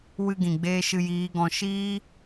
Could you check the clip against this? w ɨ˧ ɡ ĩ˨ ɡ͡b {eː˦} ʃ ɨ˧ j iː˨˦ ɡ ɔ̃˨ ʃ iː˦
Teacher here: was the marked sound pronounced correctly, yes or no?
yes